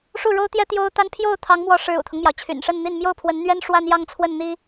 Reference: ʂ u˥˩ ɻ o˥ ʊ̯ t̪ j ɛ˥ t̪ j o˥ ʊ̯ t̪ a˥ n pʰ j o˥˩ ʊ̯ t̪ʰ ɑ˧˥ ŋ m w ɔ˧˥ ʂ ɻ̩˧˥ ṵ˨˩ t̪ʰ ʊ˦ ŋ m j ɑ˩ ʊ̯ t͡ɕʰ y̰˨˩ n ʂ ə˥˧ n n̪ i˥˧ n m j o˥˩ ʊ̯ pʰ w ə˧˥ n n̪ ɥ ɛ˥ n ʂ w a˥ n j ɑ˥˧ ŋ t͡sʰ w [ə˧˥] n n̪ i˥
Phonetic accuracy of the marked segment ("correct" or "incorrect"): incorrect